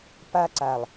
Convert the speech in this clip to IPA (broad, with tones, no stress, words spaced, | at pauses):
pa˧ǀa˨lˠ